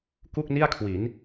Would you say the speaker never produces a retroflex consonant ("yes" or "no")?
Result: yes